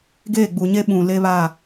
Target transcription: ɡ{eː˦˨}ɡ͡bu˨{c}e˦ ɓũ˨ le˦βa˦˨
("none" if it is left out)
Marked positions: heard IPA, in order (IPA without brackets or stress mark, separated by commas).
eː˦˨, ɲ